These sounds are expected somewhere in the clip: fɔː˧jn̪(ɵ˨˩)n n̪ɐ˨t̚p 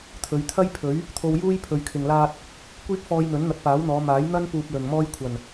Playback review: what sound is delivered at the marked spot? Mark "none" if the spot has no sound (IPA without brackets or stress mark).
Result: ɵ˨˥